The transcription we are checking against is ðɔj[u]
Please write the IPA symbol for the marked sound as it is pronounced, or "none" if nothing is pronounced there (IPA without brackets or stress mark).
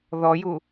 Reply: u